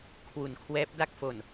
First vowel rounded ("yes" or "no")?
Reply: yes